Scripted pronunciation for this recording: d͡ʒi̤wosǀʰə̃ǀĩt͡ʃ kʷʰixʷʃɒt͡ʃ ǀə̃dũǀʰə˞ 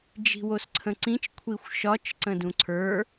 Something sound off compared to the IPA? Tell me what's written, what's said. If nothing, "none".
none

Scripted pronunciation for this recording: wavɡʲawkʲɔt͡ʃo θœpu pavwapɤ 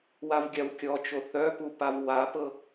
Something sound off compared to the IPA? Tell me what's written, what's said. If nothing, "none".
none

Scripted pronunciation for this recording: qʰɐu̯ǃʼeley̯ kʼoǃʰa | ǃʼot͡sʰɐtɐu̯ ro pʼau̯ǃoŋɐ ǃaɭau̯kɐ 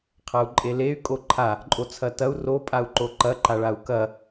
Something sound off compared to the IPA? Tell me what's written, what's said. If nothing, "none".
ŋ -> ǃ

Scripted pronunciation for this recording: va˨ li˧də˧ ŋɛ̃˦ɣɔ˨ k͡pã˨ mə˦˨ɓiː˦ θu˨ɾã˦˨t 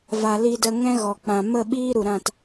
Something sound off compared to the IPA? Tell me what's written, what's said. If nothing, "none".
θ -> ɾ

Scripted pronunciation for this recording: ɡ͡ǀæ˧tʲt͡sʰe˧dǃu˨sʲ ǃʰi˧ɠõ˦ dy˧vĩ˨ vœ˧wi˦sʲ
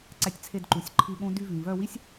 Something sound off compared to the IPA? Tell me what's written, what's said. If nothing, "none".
ɡ͡ǀ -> ǀ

